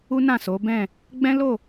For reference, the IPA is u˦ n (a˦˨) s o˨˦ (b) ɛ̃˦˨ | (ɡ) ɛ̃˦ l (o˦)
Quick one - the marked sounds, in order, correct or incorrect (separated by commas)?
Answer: incorrect, correct, incorrect, incorrect